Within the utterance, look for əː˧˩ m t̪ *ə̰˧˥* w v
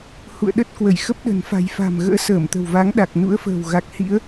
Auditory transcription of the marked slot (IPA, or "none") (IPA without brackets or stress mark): ə̤˨˩